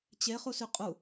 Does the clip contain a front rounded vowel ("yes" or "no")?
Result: yes